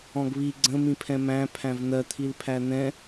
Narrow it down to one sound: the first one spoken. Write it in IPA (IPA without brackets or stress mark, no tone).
ɔ̃